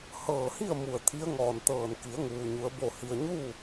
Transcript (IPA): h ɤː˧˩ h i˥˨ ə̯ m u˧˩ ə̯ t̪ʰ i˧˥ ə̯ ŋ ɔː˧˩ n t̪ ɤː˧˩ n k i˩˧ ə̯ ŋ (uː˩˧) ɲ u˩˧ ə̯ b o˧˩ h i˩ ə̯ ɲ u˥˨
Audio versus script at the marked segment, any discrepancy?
yes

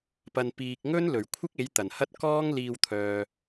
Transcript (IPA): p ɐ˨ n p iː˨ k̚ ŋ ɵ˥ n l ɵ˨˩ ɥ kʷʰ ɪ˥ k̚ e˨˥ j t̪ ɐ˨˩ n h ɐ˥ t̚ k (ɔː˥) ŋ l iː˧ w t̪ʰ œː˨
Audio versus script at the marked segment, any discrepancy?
no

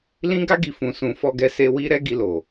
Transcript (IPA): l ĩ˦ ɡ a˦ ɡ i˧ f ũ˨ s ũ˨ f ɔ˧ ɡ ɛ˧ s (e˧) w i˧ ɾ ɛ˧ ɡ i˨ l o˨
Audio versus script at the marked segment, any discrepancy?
no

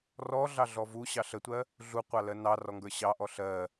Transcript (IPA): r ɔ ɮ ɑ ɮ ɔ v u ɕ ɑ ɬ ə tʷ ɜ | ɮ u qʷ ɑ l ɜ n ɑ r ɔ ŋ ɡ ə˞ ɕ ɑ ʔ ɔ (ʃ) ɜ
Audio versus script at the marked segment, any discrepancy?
yes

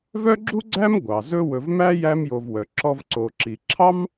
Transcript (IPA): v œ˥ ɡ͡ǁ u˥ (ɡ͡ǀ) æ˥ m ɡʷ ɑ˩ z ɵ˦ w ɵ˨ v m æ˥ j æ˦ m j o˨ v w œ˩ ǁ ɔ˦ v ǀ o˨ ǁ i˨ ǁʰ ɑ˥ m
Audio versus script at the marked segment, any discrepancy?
no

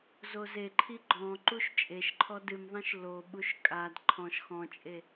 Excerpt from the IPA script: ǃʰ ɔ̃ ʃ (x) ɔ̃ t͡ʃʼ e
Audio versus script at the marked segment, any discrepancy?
no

